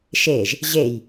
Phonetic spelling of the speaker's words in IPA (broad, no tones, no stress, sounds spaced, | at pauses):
ʃ e ʒ | ʑ e j